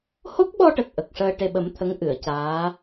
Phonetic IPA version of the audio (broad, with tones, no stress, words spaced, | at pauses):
ho˦˥k̚ɓɔ˧ʈə˨˩k̚ ʔə˨˩k̚ʂəː˧ ʈe˨˩ɓə˨˩˦m t̪ʰə˧˥ŋʔɨ˨˩˨ə̯caː˧˥